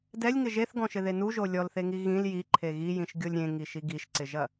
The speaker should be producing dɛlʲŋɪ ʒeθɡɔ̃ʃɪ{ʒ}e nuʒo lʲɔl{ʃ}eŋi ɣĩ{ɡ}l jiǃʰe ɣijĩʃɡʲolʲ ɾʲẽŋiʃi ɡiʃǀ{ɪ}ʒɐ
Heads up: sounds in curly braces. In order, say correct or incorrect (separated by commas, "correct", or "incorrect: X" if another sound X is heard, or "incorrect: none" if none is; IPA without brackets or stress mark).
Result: incorrect: ð, incorrect: θ, incorrect: none, correct